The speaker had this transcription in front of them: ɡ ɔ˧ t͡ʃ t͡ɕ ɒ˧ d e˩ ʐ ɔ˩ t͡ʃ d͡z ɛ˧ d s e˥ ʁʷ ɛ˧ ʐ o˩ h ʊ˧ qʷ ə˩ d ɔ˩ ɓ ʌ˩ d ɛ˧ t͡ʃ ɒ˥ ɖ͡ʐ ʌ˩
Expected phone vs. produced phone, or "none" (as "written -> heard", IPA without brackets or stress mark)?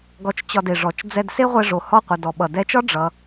ʊ˧ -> ɔ˧